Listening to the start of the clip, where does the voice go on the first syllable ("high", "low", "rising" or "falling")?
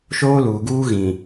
high